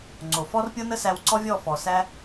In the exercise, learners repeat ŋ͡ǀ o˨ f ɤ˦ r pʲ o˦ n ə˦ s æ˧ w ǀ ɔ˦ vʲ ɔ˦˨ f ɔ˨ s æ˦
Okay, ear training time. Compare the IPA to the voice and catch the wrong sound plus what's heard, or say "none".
ɤ˦ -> ɔ˦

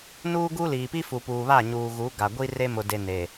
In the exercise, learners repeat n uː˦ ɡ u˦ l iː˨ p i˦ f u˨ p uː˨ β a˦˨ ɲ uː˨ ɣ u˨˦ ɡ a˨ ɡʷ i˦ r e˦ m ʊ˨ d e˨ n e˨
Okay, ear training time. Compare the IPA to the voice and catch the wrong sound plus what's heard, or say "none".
none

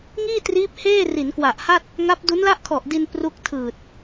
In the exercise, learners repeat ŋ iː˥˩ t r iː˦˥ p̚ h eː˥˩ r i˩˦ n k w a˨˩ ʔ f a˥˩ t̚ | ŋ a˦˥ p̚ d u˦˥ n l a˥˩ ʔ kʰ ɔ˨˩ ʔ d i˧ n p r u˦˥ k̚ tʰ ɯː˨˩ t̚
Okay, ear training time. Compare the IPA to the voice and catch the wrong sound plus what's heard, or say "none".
f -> h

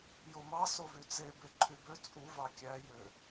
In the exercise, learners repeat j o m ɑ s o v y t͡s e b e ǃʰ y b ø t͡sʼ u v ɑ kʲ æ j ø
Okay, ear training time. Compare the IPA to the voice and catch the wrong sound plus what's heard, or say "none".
none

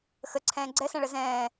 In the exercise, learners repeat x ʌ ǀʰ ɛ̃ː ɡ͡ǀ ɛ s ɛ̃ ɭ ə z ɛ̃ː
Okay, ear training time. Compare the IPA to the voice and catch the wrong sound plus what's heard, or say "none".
ʌ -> ə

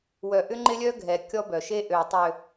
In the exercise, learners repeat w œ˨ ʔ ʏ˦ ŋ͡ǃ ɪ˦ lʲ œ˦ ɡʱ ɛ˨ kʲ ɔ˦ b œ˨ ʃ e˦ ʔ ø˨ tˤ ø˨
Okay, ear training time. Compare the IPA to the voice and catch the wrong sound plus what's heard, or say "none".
none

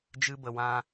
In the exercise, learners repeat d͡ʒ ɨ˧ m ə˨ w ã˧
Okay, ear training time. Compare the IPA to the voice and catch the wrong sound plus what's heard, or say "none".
m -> b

